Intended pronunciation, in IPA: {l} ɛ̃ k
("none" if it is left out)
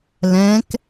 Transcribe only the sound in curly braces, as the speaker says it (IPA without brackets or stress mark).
l